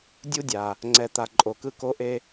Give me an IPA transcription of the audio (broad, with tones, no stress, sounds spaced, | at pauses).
dʲ u˦ dʲ a˨ | ŋ͡ǀ ɛ˨ t̪ a˨ ǃʼ o˨ k ɯ˦ k o˦ ʔ e˦